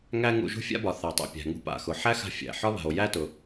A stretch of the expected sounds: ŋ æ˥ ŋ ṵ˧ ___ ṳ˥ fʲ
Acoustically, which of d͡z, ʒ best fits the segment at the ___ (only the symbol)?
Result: ʒ